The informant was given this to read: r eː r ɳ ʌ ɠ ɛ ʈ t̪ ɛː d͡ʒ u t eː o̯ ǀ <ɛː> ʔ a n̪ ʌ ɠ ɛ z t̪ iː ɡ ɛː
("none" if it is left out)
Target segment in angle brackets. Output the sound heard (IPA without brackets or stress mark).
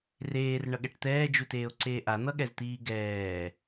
eː